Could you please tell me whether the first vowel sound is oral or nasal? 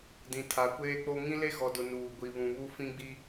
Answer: nasal